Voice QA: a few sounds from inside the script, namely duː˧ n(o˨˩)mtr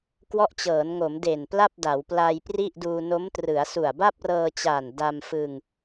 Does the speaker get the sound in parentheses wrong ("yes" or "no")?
yes